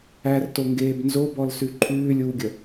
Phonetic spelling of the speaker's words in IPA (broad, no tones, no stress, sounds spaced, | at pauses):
æ r t o ŋ ɡ eː b n z o b ɔ l s ʉ ǃʰ ʉː lʲ uː ɡʲ ə